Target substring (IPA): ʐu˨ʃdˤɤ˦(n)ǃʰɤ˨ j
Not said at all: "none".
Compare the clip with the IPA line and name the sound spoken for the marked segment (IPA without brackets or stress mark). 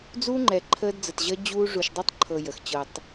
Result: tˤ